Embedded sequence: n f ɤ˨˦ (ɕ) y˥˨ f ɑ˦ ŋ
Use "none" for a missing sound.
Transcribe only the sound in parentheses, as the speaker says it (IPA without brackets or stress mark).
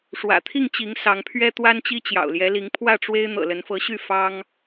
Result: ɕ